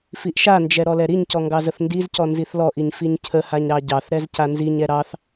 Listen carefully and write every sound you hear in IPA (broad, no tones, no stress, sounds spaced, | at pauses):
f i ʔ ʃ a n d͡ʒ ɛ ɾ ɔ l ɛ ɾ i ɲ c ɔ ŋ ɡ ɑ z ə θ n d i z c ɔ n z i θ l ɔ ʔ i ɲ f i ɲ cʰ ə h a ɲ ɾ ɑ ɟ ɑ θ ɾ ɛ z c a n z i ɲ ɛ ɾ ɑ θ